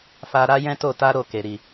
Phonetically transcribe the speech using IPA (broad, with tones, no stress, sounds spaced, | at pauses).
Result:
f a˧ ɾ a˦ j ɛ̃˦ t o˦˨ t a˧ ɾ o˧ k e˨ ɾ i˨